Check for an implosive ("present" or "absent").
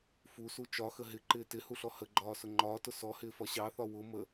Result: absent